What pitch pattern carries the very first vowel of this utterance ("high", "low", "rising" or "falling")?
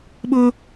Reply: high